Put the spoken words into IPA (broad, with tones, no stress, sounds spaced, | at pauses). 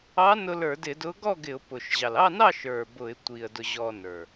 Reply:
ɑ˧˥ n ʊ˧ l ə˞˧˩˧ d ɪ˧˩˧ d ʊ˧˥ ɡ ɔ˥˨ ɡ ɪ˧˩˧ ʊ̯ p ʊ˨˩ ʃ ʑ ɑ˨˩ l ɑ˥˨ n ɑ˥˨ ʃ ə˞˨˩ b ʊ˧˩˧ ɪ̯ tʷ i˨˩ ə̯ d ʊ˧ ʑ ɔ˧ n ə˞˨˩